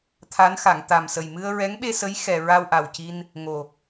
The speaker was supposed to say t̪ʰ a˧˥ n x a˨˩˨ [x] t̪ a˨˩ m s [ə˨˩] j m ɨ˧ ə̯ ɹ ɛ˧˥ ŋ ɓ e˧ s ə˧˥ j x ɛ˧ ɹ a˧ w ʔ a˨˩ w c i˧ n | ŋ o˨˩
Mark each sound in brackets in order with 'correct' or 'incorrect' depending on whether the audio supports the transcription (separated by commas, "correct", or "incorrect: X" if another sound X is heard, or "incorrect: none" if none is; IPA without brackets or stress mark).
incorrect: ŋ, correct